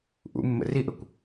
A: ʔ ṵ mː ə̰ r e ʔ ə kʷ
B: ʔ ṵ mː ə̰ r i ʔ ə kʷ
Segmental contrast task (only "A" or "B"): B